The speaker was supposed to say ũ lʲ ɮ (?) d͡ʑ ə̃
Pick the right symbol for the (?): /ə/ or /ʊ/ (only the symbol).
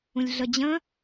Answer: ə